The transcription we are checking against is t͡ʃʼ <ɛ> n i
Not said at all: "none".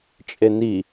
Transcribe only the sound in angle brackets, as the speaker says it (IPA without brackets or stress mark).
e